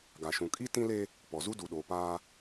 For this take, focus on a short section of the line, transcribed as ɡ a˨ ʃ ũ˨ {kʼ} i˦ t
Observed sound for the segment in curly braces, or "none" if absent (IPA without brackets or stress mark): kʼ